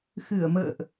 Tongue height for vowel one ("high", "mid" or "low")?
high